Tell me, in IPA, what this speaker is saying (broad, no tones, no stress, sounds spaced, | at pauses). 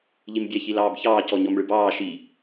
ʎ i m bʲ ɛ ç i l ɑː b ç ɑː c ɔ ɲ ɔ m ɭ ɯ b ɑː ʃ i